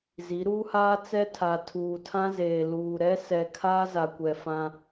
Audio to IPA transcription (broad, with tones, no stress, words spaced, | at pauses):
zi˨˦ ɾuː˦haː˦ t͡sɛ˦tʰa˨ tʰuː˨tʰã˦zeː˨ luː˨ ɾɛ˦ sɛ˨ kʰaː˦za˨kʷɛ˨ fã˦